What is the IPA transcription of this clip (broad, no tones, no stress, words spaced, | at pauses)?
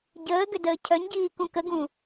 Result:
ɟəːɡʏ dəːcʰœɲɟiː kũkəɡũ